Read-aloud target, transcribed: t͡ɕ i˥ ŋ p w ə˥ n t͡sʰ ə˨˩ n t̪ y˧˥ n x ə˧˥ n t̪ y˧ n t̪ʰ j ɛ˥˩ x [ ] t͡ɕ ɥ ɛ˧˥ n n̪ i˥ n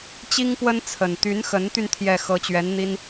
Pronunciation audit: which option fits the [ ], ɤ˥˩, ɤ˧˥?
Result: ɤ˧˥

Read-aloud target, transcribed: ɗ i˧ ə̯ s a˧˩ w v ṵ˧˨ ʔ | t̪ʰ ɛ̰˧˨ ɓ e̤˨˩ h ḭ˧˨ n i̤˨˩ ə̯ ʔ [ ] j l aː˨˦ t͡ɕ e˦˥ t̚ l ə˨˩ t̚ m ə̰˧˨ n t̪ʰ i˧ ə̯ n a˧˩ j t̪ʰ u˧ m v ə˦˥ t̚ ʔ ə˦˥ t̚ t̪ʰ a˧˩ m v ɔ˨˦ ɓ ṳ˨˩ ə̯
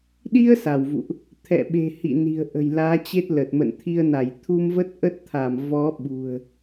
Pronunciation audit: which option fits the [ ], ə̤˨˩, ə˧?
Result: ə̤˨˩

